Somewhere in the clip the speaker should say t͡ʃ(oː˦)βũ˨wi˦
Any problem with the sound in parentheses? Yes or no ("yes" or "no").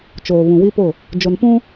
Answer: yes